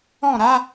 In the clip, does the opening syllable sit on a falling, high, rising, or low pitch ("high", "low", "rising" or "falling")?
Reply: falling